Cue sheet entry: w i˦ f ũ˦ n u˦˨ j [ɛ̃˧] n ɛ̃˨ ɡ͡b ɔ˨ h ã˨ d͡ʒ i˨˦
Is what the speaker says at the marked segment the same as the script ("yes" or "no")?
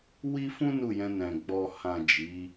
yes